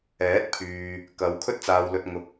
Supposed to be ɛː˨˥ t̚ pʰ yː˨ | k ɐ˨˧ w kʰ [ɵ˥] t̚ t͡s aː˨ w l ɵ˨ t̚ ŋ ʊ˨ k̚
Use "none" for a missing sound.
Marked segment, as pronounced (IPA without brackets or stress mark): ɵ˧